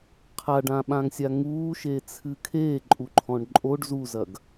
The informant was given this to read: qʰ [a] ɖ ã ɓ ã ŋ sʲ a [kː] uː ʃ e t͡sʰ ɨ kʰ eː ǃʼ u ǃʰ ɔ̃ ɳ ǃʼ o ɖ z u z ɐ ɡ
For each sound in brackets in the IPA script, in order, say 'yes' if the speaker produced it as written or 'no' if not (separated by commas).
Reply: yes, no